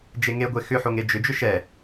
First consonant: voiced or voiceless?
voiced